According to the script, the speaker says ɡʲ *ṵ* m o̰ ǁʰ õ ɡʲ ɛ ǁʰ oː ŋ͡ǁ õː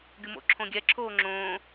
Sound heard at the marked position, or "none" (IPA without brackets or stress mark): u